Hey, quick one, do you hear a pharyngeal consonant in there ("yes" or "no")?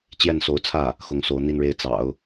no